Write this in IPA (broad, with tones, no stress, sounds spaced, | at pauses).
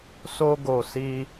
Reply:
s o˧ ɡ o˨ s i˧